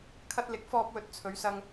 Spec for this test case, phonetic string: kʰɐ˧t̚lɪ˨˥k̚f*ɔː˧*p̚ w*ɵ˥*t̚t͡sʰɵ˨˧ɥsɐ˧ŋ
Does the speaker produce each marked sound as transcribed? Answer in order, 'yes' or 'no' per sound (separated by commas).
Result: yes, no